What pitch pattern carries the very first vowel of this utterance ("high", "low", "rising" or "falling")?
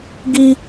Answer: high